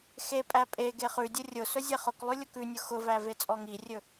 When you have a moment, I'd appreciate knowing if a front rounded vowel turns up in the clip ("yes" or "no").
no